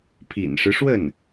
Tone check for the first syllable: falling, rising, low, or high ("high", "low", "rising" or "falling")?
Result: low